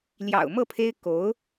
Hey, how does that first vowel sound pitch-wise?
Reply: low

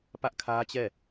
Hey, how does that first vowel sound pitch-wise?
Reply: high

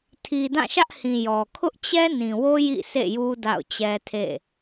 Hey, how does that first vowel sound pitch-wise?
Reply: low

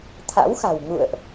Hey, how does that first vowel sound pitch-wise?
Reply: rising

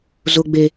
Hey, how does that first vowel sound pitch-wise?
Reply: high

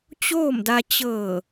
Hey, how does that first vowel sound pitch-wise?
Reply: falling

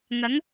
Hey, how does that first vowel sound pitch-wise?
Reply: rising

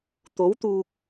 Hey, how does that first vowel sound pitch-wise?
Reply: rising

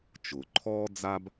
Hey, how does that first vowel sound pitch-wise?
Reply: low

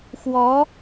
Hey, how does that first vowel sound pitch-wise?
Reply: rising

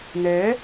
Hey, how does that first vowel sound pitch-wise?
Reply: rising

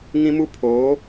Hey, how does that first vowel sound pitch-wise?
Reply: high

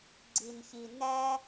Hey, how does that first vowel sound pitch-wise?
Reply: low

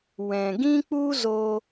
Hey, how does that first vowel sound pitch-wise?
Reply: low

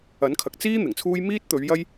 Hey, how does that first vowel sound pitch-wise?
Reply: rising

